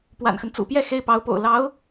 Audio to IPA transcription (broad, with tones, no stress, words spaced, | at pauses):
pwa̰˨˩nxə˦n t͡sṵ˨˩pjɛ˥˩ xe˥ɪ̯pɑ˧˥ʊ̯po̰˨˩ʊ̯ lɑ˧˥ʊ̯